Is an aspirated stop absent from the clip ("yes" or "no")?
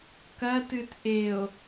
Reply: yes